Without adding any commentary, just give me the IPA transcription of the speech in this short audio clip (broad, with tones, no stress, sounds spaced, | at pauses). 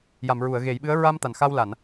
j a˨˩˨ m ɹ u˨˩˨ ə̯ ɣ e˨˩˦ j ɓ ɨ˧˥ ə̯ ɹ a˧ m t̪ a˨˩ n x a˧ w l a˨˩˨ n